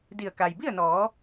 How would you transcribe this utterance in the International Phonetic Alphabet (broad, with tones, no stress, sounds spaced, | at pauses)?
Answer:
d i˧˩ ə̯ k a˩ j b i˥˨ ə̯ n ɔː˩˧